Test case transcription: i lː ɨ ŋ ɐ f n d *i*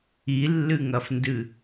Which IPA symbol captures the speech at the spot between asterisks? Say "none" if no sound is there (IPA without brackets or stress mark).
ɨ